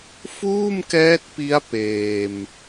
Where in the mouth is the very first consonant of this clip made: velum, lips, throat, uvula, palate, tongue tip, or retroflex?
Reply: lips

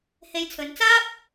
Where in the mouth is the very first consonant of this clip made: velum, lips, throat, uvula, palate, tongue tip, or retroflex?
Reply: throat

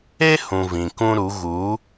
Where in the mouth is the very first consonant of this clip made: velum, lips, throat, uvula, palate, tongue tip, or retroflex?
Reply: throat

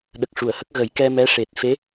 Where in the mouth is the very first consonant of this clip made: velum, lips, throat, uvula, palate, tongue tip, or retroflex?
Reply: tongue tip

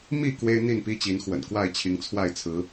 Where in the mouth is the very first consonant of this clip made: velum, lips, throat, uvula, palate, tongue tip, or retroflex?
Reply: lips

